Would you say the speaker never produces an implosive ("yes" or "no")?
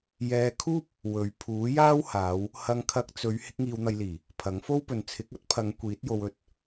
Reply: yes